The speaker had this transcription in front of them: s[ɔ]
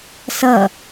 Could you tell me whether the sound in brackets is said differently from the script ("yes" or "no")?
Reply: yes